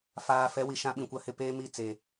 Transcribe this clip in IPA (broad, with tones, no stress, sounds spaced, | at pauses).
f aː˨ f ɛ˨˦ w i˨ ʃ ã˦ ɓ ĩ˨ kʷ a˦ h ɪ˦ p eː˦ m i˦˨ t͡s e˨